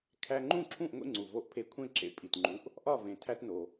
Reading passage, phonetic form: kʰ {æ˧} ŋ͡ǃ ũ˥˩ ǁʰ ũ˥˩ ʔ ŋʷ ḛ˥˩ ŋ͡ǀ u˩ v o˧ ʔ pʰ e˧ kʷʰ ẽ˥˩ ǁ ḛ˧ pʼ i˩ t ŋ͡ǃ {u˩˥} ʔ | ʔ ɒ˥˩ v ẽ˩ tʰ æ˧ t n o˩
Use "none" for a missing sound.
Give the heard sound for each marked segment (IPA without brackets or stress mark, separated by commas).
æ˧, u˩˥